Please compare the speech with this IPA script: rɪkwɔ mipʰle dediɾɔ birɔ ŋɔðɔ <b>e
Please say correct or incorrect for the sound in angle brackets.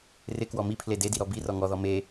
incorrect: m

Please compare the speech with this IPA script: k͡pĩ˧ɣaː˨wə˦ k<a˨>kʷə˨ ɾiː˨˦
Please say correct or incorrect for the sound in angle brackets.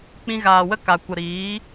correct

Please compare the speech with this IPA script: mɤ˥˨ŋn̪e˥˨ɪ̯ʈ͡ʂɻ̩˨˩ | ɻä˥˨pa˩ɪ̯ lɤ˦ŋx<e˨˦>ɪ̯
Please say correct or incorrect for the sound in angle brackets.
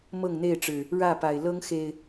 incorrect: e˨˩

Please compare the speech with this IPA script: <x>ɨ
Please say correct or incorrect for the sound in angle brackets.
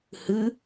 incorrect: h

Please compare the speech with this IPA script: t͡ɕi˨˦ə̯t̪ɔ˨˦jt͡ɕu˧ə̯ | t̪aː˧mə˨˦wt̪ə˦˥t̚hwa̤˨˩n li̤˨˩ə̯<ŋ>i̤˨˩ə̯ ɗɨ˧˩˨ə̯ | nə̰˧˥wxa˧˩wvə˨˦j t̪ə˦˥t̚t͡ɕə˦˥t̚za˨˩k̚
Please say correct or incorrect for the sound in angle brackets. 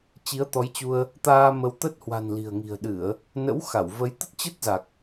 correct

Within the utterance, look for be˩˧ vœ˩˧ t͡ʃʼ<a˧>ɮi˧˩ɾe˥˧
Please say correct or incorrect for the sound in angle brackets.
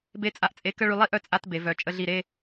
incorrect: ə˧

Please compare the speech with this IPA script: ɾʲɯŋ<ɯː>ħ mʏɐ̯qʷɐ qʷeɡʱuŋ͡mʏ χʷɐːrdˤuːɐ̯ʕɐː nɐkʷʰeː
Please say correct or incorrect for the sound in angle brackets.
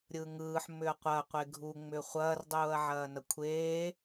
correct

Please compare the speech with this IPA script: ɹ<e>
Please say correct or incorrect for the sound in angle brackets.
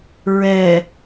incorrect: ɛ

